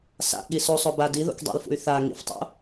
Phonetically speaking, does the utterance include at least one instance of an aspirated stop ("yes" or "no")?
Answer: no